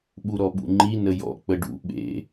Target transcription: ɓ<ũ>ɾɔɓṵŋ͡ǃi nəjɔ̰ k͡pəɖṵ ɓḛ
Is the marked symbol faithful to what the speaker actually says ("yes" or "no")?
no